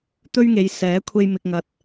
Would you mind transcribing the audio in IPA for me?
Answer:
t̪ ɵ˥ ɥ ŋ e˨˧ j s ɛː˨˥ kʷʰ e˧ j m ɪ˨ k̚ ŋ ɐ˨ t̚

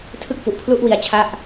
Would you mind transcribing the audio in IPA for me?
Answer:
tʰ ɯ˥˩ k̚ f u˨˩ ʔ pʰ l u˦˥ ʔ w i˧ a̯ t͡ɕʰ a˥˩ ʔ

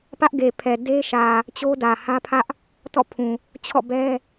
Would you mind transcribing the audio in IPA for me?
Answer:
p ä˦ ʔ ɡ e˨ pʰ ɛ˨ d e˦ ʃ ä˨ | t͡ɕ o˦ d ä˨ h ä˦ pʰ ä˦ ʔ | t ɔ̰˦˨ pʰ ũ˨ | t͡ɕʰ ɔ̰˦˨ b ɛ˦

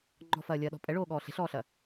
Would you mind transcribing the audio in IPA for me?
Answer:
ŋ͡ǃ ɔ̤ f ɐː lʲ ɐː ɗ ɔ̤ pʼ ɛ ɭ oː ɠ ɔː ɬ e̤ ɬ ɔː ɬ ɐː

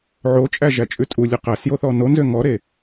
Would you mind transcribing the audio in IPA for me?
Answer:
ʕ o t͡ʃʼ æ ʒ æ t͡ʃʼ ʉ tʼ u lʲ ʉ q æ s j o θ ɔ n o n z ø ŋ ɔ ɾ e

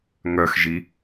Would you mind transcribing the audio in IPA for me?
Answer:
ŋ œ x ʒ i

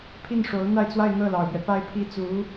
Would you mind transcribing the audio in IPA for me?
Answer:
pʰ i˥˩ n ʂ o˧˥ ʊ̯ n̪ a˥˧ ɪ̯ t͡s w a˥˧ ɪ̯ n̪ ɤ˥˩ l ɑ˨˩ ʊ̯ p ɥ ɛ˦ p a˥˧ ɪ̯ pʰ i˥˩ t͡s u˧˥

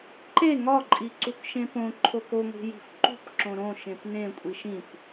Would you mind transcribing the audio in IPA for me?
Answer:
ǃ e ŋ ɒ ǃʼ i ǀ u k ʃ ẽ p õ ǃʰ o k o ŋʷ i̤ j i̤ f ǃ ṳ p ǁ õ ɾ õ ʃ ẽ p n ẽ kʷʼ i ʃ ĩ p

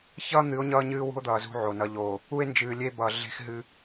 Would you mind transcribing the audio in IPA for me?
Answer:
ç ʌː˦ n̪ ɨː˨˦ o̯ ɲ ʌː˦ ɲ ɨː˦ w ṳ˦ o̯ d̪ ʌː˨ z ṳ˦ ʕ o˨ n ʌ˨ ʎ oː˨ | u˦ e̯ n d͡ʒ ɨː˨ lʲ e˦ b ʌː˨ ɮ e̤˦ x ɦ ɨ˦

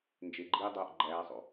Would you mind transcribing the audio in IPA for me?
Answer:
n d͡ʒ e ɡ͡ǃ iː dˤ oː ʔ ɡ͡ǃ æː sˤ o̰

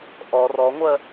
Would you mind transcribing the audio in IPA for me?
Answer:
ʔ ɔ r ɔ ŋʷ ɜ

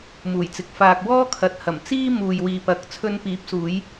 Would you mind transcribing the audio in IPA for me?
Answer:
m uː˨˩ j t͡s ɪ˨ k̚ f aː˨ k̚ w ɔː˥ kʰ ɐ˨ t̚ h ɐ˨˩ m t͡s iː˥ m uː˨ j w iː˨ p ɐ˨˥ k̚ t͡sʰ ɵ˧ n p iː˨˥ p̚ s uː˨˧ j

